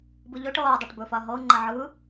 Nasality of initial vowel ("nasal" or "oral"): oral